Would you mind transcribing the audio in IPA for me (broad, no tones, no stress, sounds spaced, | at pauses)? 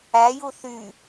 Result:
æ j u θ y